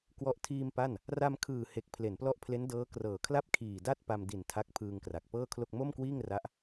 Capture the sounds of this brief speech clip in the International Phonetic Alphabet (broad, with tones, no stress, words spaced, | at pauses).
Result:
kwɔ˦˥ʔ tʰiː˧m pa˥˩n | ra˧mkʰɯː˨˩ he˨˩k̚pʰle˩˦nplɔ˦˥ʔpʰle˦˥n dɤː˦˥krɤː˨˩kʰla˥˩p̚ kʰiː˨˩da˥˩t̚ pa˧mdi˨˩n tʰa˦˥k̚pʰɯː˧ŋkra˨˩k̚ pɤː˥˩kʰlo˥˩k̚ mo˥˩mkwiː˥˩ŋra˦˥ʔ